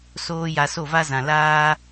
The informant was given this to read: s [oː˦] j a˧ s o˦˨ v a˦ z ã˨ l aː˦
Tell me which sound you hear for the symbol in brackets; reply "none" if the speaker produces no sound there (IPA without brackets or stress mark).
oː˦